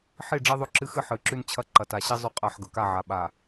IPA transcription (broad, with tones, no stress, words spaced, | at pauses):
ħi˦˨ ɖ͡ʐi˦ðˤɵ˦ǁɨ˦xɨ˦ ħɨ˨˦ǁʉ˦nt͡ɕʰɐ˦ ǃɐ˨ta˨ ɕi˦ zˤʉ˦qʼa˦˨ħ ɡɵ˨ka˦˨ʕa˨ ɓa˨